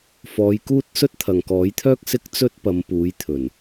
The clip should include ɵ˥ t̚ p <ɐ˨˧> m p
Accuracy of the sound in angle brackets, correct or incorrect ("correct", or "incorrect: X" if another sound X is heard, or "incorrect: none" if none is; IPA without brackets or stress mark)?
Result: correct